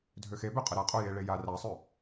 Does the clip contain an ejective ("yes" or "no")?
yes